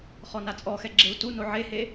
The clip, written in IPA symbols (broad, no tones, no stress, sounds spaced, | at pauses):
χ ɔ n a t͡sʼ ɔ x ɛ ɡ͡ǁ e u̯ t u n o ʕ e h e